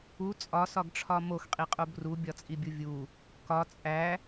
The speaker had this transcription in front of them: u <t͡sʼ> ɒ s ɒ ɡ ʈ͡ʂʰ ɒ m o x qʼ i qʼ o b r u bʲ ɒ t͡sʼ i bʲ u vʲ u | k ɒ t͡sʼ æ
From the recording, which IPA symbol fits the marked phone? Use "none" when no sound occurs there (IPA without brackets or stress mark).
t͡sʼ